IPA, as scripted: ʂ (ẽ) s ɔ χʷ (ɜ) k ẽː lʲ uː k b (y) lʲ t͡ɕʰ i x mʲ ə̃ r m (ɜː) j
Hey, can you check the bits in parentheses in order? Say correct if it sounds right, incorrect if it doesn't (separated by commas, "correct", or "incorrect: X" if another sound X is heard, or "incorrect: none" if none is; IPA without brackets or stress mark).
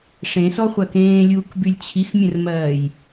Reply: correct, correct, correct, correct